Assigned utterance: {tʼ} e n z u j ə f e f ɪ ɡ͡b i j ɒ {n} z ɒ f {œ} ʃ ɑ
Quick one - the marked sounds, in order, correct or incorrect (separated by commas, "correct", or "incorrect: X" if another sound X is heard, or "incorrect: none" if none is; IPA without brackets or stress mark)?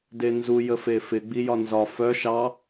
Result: incorrect: d, correct, correct